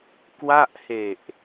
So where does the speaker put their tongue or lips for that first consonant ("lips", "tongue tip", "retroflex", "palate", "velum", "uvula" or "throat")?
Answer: velum